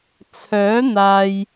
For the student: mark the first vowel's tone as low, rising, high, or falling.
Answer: rising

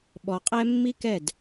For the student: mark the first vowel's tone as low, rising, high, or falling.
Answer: low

